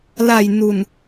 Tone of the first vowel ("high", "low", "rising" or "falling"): low